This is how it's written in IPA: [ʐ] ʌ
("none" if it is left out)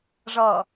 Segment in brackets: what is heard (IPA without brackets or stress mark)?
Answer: ʐ